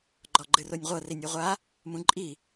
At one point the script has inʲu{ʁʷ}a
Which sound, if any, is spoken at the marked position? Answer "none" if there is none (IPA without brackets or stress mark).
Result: ʁʷ